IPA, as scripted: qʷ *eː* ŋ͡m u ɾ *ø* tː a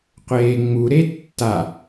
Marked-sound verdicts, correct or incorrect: correct, incorrect: e

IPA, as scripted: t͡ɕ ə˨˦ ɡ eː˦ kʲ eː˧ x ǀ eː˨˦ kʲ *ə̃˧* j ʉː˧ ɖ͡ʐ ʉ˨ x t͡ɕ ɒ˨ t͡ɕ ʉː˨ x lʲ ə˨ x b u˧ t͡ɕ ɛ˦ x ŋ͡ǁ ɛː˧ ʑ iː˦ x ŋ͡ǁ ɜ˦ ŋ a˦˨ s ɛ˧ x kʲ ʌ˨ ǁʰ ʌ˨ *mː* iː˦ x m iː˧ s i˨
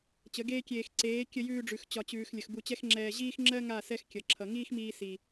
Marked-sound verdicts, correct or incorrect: incorrect: ə˧, incorrect: ŋ

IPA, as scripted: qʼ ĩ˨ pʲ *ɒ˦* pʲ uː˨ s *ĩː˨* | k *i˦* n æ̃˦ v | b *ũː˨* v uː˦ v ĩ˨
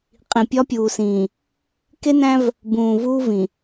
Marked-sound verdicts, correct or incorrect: correct, correct, incorrect: e˦, correct

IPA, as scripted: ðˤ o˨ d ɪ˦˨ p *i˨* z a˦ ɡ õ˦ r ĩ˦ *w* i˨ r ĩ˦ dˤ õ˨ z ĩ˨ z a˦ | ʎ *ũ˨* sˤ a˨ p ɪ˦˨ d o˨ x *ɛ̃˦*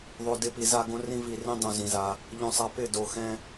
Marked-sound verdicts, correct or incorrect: correct, incorrect: v, incorrect: õ˨, correct

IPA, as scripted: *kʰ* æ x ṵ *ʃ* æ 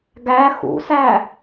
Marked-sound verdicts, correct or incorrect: incorrect: ɡ, incorrect: s

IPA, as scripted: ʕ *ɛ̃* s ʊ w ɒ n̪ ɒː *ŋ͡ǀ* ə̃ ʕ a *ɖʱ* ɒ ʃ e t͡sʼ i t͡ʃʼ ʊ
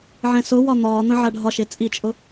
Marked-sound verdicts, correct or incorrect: correct, incorrect: n̪, correct

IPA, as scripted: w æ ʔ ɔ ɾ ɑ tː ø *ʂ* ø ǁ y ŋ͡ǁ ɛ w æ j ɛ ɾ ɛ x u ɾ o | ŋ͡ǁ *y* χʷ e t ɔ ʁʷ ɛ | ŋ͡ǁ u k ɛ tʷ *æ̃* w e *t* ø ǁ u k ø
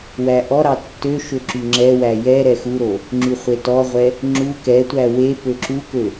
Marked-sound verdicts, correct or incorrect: incorrect: ʃ, correct, incorrect: æ, incorrect: p

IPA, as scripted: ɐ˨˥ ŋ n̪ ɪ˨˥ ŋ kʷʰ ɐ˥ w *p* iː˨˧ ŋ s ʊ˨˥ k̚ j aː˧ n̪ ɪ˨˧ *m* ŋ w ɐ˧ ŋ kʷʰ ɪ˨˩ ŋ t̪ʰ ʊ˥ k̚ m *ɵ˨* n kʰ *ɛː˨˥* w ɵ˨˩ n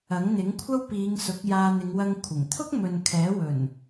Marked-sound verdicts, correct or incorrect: correct, incorrect: none, correct, correct

